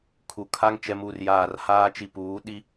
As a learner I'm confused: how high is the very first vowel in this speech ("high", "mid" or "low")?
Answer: high